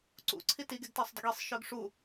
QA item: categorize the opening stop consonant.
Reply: click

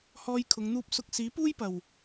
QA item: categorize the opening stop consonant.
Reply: aspirated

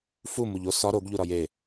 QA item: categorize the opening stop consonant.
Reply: plain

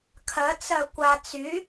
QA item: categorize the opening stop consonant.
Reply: aspirated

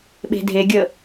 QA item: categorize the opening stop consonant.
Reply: implosive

